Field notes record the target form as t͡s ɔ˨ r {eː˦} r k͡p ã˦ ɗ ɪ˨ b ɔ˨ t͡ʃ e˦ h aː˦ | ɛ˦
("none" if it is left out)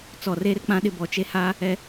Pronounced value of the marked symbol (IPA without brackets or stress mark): eː˦